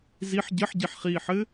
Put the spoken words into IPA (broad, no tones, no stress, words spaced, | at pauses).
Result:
ziħ ɟɘħɟiħχiːħɘ